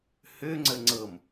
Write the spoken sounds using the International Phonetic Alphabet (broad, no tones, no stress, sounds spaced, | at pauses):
h ø ŋ͡ǀ ə ŋ͡ǀ ɤ m